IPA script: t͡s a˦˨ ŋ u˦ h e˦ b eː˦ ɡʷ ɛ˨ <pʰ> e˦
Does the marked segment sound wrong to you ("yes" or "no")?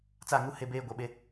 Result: yes